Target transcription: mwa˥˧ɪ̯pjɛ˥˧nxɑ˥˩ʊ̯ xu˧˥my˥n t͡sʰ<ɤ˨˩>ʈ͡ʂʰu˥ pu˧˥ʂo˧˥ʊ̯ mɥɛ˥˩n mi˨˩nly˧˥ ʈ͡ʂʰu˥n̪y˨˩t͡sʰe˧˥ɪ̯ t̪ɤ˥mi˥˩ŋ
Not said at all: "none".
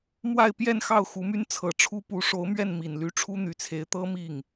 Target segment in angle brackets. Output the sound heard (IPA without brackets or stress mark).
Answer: ɤ˨˩